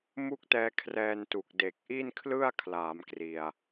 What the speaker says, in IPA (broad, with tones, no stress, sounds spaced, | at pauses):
m u˥˩ k̚ t ɛː˧ kʰ r ɛː˧ n t u˨˩ k̚ d e˨˩ k̚ ʔ i˥˩ n kʰ l ɯ˥˩ a̯ kʰ l aː˩˦ m k r i˧ a̯